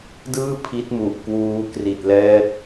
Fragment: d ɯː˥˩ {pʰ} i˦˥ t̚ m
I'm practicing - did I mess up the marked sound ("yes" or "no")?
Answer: no